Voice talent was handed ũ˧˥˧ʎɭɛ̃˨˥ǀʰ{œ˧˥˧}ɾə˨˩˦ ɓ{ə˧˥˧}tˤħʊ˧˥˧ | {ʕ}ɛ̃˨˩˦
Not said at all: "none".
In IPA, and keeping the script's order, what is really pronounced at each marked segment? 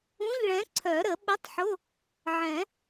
œ˨˩˦, ə˧˥˧, ʕ

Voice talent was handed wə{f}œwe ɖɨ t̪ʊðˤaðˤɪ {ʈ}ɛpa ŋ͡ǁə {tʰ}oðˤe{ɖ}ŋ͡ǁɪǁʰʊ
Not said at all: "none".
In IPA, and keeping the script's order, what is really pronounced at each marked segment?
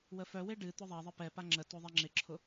f, p, t, none

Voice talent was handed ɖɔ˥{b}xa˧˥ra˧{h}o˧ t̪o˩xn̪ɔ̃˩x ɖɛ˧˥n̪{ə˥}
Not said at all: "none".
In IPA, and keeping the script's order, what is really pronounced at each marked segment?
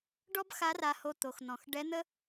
b, h, ə˥

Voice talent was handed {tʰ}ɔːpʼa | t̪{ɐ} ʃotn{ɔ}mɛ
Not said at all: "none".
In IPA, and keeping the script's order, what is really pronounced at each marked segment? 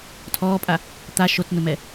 tʰ, a, ʊ

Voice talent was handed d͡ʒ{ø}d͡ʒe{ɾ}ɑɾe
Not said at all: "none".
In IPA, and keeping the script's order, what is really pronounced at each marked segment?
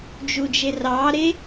u, r

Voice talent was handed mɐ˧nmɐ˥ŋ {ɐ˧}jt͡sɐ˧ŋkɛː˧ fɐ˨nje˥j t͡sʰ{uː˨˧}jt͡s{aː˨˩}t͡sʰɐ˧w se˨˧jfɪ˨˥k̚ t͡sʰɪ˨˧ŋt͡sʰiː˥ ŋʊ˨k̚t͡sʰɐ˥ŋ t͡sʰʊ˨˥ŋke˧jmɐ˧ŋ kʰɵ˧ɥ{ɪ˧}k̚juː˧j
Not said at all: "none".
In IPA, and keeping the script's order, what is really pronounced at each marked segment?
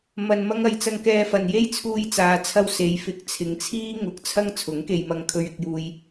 ɐ˨˧, uː˧, aː˨˧, ɪ˧

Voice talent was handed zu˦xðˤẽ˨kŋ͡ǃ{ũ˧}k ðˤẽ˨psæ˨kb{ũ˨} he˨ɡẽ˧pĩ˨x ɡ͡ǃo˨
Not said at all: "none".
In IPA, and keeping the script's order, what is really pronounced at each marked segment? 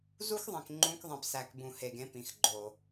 ũ˧, ũ˨

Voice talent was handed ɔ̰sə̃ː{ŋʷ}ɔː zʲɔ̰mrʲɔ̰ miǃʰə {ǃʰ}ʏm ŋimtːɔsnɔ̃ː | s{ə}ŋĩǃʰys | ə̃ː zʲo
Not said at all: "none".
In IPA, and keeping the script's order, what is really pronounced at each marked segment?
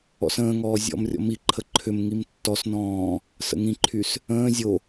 ŋ, ǃʰ, ə̰

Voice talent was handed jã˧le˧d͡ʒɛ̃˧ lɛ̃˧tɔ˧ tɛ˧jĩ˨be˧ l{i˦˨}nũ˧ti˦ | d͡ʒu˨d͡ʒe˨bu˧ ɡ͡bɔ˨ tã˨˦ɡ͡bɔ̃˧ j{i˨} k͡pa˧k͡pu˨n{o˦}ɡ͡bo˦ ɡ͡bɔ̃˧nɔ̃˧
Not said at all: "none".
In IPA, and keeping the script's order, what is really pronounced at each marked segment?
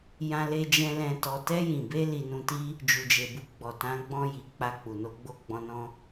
i˧, i˨, o˧

